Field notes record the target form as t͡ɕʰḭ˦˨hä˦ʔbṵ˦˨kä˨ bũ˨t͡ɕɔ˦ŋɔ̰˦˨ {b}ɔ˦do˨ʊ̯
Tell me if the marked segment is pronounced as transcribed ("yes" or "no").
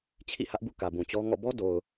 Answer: yes